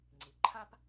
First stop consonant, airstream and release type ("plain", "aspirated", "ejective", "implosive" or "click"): click